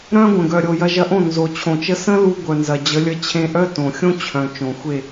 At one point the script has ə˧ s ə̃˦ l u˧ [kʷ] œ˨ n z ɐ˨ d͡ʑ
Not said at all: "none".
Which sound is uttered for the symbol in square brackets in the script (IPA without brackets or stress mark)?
ɡʷ